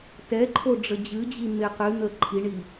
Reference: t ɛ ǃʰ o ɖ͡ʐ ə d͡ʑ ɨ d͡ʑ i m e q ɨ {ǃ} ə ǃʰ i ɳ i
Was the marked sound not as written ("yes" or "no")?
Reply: yes